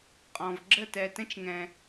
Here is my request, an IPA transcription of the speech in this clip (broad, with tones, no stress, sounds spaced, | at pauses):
qʼ ɔ̃˨ v ɡ͡ǁ ə˦˨ t ɛ˨ t ə̃˦ t͡ʃ ŋ ɛ̃˨